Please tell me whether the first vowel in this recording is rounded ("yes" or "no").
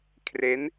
no